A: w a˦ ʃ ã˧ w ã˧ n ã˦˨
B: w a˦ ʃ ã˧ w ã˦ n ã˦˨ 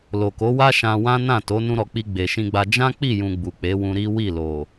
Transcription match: B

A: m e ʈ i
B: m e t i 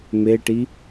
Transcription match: A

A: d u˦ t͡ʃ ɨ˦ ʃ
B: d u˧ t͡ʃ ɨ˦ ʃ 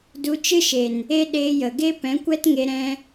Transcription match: B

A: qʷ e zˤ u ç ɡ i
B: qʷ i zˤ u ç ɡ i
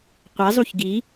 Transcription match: A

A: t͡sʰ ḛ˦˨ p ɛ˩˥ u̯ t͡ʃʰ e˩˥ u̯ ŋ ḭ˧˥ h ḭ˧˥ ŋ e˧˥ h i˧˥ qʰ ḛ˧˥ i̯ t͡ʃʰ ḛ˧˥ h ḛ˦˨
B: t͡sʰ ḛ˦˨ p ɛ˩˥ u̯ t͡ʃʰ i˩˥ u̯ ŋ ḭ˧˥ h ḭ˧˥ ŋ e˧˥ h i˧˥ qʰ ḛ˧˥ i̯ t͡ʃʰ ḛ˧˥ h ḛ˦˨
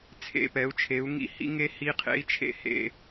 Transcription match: A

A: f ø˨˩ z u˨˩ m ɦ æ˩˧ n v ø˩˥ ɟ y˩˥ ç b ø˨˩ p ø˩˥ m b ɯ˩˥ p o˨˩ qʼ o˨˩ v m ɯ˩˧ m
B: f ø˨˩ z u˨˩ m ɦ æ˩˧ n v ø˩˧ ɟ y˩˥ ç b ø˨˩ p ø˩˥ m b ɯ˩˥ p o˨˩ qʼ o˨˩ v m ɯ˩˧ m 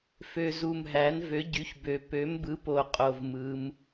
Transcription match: A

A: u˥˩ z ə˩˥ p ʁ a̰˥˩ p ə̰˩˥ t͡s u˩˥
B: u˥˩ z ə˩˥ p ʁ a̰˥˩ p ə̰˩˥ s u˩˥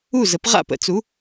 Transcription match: A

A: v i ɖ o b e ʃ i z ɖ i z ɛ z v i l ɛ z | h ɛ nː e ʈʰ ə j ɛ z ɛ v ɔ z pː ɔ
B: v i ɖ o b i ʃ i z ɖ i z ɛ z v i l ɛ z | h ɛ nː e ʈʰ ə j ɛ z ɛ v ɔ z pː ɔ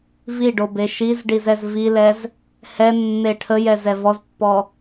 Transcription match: A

